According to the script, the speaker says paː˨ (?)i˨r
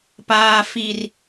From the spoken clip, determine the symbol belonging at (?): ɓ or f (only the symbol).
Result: f